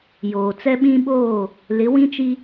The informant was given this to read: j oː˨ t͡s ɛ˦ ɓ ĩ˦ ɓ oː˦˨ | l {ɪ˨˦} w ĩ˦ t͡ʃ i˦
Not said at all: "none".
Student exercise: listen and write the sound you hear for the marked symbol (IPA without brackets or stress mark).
ɪ˨˦